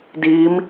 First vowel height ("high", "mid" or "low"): high